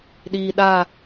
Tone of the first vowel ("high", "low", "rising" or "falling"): low